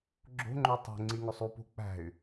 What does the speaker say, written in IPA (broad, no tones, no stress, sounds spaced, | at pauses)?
ɡ͡ǁ o̤ ŋ͡ǃ o tˤ o̤ ŋ͡ǀ i ŋ o sˤ u p o̤ k͡p æ̤ y̯